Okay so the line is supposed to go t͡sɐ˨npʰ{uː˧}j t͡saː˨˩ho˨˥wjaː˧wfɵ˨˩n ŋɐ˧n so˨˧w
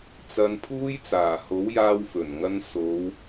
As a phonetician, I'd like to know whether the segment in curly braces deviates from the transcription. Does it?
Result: no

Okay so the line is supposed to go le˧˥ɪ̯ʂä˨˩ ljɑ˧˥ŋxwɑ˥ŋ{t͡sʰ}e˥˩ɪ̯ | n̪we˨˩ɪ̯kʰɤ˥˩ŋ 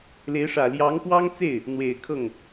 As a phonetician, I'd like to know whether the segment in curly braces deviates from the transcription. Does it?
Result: yes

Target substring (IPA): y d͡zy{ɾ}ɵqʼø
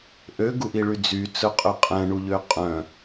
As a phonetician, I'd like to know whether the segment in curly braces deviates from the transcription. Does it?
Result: yes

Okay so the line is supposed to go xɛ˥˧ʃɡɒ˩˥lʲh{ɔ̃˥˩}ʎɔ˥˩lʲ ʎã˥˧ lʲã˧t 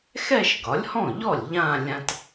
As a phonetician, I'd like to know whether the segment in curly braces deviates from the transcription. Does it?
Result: no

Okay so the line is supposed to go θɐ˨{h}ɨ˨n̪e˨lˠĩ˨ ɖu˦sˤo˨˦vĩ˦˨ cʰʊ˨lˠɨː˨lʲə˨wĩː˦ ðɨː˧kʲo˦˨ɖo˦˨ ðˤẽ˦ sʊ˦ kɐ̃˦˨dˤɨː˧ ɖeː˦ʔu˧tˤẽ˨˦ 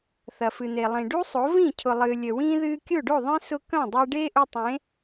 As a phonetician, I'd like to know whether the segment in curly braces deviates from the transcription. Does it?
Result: yes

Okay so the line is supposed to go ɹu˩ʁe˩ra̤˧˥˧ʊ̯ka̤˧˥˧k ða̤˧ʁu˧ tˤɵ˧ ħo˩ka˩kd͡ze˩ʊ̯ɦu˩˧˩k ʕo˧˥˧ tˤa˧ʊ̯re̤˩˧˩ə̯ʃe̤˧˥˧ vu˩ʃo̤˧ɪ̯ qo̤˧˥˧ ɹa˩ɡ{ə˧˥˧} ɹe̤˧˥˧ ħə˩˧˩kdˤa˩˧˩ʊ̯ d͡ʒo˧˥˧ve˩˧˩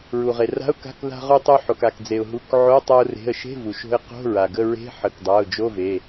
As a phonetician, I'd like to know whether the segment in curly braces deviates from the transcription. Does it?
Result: no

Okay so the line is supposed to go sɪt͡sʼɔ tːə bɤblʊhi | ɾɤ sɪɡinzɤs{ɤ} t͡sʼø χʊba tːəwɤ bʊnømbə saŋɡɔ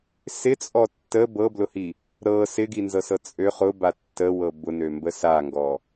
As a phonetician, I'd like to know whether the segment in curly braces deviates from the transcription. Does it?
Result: no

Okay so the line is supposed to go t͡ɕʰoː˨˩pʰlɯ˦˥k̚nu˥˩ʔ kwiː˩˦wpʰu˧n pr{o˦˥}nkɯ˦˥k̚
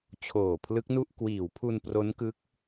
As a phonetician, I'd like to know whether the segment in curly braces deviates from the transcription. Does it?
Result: no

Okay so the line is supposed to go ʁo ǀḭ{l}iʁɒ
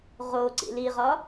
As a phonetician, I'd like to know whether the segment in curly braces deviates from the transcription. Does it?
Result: no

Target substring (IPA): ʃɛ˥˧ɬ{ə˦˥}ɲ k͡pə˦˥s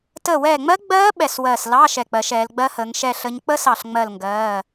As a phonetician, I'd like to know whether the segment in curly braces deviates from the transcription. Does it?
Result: no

